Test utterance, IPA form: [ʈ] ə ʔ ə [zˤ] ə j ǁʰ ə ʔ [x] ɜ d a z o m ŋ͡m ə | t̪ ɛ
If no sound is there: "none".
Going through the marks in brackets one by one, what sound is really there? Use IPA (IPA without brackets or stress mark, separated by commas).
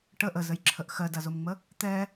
ʈ, z, x